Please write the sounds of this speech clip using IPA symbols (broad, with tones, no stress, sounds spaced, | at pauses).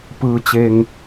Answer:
p ɯː˧ t͡ɕ e˧ ŋ